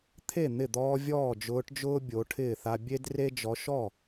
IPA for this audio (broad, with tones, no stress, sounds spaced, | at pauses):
t̪ʰ e˥˩ n̪ ɪ˥˩ d̪ ɔː˦ vʲ ɔː˥˩ d͡ʒ ʊː˨˦ ʈ d͡ʒ ʊː˦ bʲ o˨˦ ʈʰ ɪː˥˩ θ a˦ bʲ e˦ d r e˦ d͡ʒ ɔ˨˦ ʃ ɔ˥˩